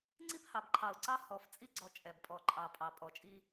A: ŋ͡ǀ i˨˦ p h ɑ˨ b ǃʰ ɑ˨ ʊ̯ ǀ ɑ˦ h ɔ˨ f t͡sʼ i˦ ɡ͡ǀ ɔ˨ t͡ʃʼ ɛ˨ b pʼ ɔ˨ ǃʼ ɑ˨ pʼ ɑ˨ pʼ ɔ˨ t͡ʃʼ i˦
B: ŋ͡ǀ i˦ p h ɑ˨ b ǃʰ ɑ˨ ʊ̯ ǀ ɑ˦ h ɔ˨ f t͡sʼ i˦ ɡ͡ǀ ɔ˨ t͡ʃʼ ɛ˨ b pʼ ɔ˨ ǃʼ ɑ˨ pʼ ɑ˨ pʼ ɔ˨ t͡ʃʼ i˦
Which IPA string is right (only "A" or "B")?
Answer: B